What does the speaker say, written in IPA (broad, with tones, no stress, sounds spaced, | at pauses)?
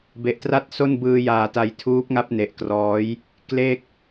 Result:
b e˨˩ ʔ t r a˥˩ t̚ s o˥˩ n b ɯː˧ j aː˨˩ t a˧ j tʰ uː˦˥ p̚ ŋ a˥˩ p̚ n e˨˩ ʔ k r ɔː˦˥ j | k l e˥˩ k̚